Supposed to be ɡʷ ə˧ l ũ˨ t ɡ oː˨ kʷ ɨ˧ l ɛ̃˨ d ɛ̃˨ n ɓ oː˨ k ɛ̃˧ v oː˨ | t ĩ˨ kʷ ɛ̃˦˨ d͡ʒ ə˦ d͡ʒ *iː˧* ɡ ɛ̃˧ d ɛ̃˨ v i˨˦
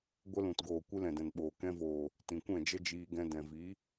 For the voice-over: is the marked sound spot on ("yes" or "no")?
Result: yes